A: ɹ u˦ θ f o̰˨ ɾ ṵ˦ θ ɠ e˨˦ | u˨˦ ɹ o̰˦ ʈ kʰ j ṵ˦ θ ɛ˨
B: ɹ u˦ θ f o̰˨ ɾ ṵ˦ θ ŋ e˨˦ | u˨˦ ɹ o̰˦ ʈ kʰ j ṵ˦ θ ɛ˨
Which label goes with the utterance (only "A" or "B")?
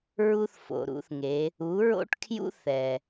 B